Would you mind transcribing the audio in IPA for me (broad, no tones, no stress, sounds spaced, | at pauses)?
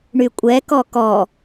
ɳ y kʷʼ ɛ k ɔ k ɔ